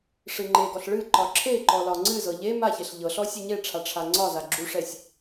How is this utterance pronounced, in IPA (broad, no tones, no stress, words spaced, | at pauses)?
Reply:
ʂɨŋ͡ǃeɡɔɬ ɭɨǃɒ ǁʰeǃɔ lɒŋ͡ǀɨzɤ ʎe maçeɬ ʎɤɬɔ sʲeɲeʈ͡ʂʰa ʈ͡ʂʰaŋ͡ǀɒza ɡ͡ǁuʂɛsʲ